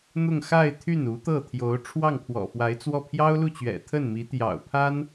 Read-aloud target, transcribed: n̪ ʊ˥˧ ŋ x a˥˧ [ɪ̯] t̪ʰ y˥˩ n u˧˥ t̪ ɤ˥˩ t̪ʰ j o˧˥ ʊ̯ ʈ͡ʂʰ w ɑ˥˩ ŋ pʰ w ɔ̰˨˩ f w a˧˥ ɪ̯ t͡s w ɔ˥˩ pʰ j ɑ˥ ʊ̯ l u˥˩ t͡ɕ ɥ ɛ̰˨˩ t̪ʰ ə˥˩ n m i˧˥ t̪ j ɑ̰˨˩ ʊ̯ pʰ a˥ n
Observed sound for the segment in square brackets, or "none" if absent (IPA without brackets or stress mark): ɪ̯